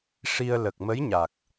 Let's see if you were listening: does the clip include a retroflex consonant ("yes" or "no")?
yes